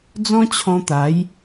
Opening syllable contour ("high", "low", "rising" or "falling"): high